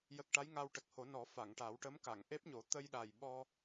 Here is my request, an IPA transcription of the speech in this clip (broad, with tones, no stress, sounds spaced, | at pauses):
j ə˨˩ k̚ ʈ a˧˥ j ŋ a˧ w ʈ ə˨˩ k̚ h o˨˩˦ n ɔ˨˩˦ f a˨˩˨ ŋ ʈ a˨˩˦ w ʈ ə˧˥ m k a˨˩˨ ŋ ʔ e˦˥ p̚ ɲ o˨˩˦ t̪ ə˧ j ɗ a˨˩ j ɓ ɔ˧